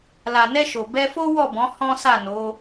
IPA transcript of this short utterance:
l a˨ n ɛ˧ ʃ o˨ b ɛ˧ f o˦ w ɔ˦˨ b ɔ̃˨˦ h ɔ̃˦ s a˦˨ n o˨˦

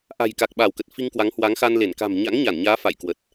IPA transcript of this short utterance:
ʔ a̤˨˩ j k a˨˩ k̚ ɓ a˧˩ w k ə˨˩ t̚ f i˧ ŋ k w a˨˦ ŋ h w a˨˦ ŋ x a˧ n l e˧˩ n k a̤˨˩ m ɲ a̰˧˥ ŋ ɲ a˧˩ n ɲ aː˨˦ f a̰˧˨ j k w ə˨˩ t̚

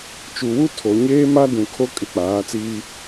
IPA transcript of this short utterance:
t͡ʃ u˨ w u˦ tʰ o˨ ɲ eː˦ m a˦ d ũ˨ kʰ o˦ kʼ ɪ˦˨ k͡p aː˨˦ t͡s iː˦

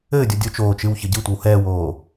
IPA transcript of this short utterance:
ɘː dʲ ɔ dʲ o t͡ʃ oː t͡ʃ ɨ w ç ɘ ɟ ɨ tʷ ɛ w h ɛː w oː

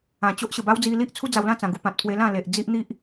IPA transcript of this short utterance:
ã˨˩ t͡ɕ o˦ ʔ ɕ ə˨˩ b a˦ w d͡z i˧ l i˦ ʔ t͡sʰ u˦ d͡z a˧ w l ã˥˧ t͡s ã˨˩ ɡ u˧ p ã˨ t̚ pʰ w e˧ l ã˥˧ l e˨ ʔ d͡z i˦ ʔ n̪ i˦ ʔ

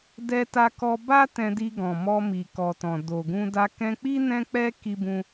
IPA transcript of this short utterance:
d ɛ˧ t a˧ k ɔ˧ b a˦ t ɛ̃˧ d i˧ ɡ ɔ̃˨ m ɔ˧ m i˨ k ɔ˨ t ɔ̃˨ d o˨ ɡ ũ˧ d a˧ k ɛ̃˧ k͡p i˦ n ɛ̃˦ k͡p ɛ˦ k i˧ b ũ˧

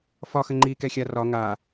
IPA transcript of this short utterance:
f ɒ x ə ŋ͡ǃ i k ɛ xʲ a r ɒ ŋ a

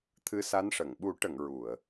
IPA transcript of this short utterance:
t̪ʰ ɨ˧˥ s a˧˥ n ʂ ə˨˩˨ ŋ ɓ u˨˩˦ ʈ ə˨˩˨ ŋ ɹ u˨˩˨ ə̯

